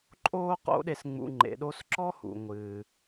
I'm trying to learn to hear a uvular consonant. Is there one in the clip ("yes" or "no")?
yes